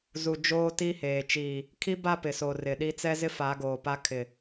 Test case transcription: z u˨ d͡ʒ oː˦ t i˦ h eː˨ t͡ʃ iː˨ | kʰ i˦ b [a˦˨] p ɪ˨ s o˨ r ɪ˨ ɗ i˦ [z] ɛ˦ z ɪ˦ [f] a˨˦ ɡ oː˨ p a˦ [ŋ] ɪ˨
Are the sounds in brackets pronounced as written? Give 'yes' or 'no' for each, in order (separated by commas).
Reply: yes, no, yes, no